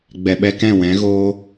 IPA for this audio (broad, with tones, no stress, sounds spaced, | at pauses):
ɡ͡b ɛ˨ ɓ ɛ˧ k ɛ̃˦˨ w ɛ̃˨˦ ɣ oː˦